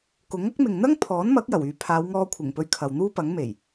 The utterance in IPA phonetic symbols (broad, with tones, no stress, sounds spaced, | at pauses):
k ʊ˨˥ ŋ ɐ˥ k̚ m ɪ˨ ŋ n̪ ɐ˥ ŋ pʰ ɔː˨˥ n m ɐ˨˥ k̚ j ɐ˨˩ w yː˨ pʰ aː˨˧ w ŋ ɔː˧ kʷʰ ɪ˨˩ ŋ p ɵ˧ ɥ kʰ ɐ˨ w n̪ uː˥ p ɐ˨˥ ŋ m e˨˩ j